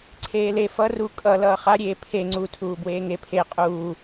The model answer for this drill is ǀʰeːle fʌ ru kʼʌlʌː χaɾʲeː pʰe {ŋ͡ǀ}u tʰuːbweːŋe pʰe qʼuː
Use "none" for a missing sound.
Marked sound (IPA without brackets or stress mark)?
ŋ͡ǀ